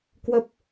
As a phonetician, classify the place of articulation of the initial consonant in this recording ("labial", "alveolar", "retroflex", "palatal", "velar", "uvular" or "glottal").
velar